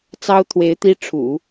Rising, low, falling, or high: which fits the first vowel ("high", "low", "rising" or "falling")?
high